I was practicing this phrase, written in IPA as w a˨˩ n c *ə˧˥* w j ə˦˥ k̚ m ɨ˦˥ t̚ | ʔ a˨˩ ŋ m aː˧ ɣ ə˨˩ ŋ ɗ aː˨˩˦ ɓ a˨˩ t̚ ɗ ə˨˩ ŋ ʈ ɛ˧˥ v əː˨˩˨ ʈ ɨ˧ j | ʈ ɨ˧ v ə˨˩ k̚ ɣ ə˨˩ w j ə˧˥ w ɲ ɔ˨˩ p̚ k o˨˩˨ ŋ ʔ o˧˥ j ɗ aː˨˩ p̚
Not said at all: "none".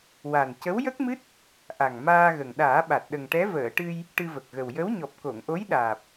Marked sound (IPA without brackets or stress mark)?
ə˧˥